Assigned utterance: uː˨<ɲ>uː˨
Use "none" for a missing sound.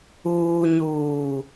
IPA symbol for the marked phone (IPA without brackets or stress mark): ɲ